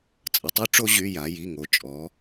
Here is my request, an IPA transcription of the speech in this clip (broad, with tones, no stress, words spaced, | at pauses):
t͡sʼə˩˧tˤy˦˥ʈ͡ʂo˦˥ ʑy˩˧˩ ja˩˧ ji˩˧˩ŋo˩˧ t͡ʃʼɔ˩˧